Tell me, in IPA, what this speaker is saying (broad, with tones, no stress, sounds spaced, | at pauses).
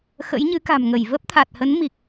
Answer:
x ə̰˧˥ j ɲ ɨ˨˦ k a̤˨˩ m ŋ ə˧˩ j v ə˦˥ p̚ t̪ʰ a˨˩ t̚ h ə˨˦ n m i˨˩ k̚